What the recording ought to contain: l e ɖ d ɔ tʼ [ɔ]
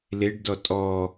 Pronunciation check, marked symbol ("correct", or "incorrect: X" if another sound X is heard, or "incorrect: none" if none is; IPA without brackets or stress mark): correct